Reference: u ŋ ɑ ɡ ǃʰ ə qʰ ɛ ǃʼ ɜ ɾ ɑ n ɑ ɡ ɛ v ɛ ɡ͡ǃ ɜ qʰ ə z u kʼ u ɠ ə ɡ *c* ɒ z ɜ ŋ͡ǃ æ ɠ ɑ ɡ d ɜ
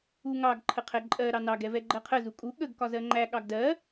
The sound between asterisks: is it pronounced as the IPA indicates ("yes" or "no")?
no